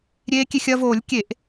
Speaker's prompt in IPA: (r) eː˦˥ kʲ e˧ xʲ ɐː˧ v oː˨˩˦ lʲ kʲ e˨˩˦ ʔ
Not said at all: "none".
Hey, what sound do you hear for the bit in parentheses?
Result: ɾʲ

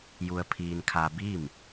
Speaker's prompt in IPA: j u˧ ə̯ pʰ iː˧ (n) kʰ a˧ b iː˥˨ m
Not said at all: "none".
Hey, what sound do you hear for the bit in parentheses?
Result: n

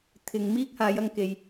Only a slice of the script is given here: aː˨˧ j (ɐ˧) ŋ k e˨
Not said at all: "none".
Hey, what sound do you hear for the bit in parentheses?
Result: ɐ˧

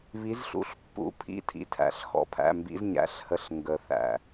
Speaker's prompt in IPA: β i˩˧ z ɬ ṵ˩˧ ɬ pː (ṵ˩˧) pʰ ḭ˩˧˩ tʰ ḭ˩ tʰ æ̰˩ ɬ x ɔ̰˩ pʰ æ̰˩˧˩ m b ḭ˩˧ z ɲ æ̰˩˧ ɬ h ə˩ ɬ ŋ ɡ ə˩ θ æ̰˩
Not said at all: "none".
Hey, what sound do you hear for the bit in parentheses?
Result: ṵ˩˧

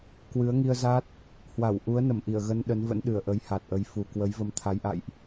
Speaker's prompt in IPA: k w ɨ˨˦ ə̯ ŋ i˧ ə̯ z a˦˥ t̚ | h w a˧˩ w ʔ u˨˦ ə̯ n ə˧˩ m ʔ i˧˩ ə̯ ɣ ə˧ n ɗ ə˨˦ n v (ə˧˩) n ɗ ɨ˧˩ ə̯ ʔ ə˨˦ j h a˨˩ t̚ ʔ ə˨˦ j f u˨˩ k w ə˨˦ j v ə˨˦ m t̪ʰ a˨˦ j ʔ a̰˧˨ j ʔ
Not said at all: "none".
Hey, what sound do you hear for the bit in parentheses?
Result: ə̰˧˥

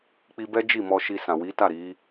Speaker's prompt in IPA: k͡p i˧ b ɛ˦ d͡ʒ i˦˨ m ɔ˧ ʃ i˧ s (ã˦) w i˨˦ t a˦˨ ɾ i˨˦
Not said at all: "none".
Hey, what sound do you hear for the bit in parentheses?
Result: ã˨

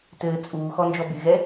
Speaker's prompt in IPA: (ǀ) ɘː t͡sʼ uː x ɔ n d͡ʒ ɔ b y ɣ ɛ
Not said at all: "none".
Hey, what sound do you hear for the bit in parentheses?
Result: t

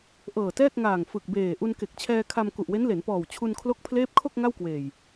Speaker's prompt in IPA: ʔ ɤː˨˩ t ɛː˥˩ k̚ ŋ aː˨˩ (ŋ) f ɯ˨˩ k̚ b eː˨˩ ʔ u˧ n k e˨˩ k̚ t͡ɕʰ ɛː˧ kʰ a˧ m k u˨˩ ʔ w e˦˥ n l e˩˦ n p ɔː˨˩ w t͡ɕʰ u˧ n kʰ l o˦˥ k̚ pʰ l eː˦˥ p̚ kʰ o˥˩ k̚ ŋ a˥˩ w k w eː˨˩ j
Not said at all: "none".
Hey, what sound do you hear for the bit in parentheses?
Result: ŋ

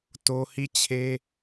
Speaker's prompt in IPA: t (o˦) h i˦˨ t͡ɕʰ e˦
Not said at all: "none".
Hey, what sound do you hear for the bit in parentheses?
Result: o˦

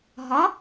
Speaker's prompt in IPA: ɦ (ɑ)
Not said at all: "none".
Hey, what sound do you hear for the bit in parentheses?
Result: ɒ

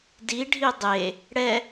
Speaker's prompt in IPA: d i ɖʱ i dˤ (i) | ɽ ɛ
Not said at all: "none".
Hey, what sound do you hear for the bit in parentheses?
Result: e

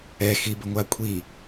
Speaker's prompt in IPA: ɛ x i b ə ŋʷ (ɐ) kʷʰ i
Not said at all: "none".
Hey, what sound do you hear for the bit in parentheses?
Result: a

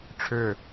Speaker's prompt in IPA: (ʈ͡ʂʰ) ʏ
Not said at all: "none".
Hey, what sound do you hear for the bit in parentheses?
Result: ʈ͡ʂʰ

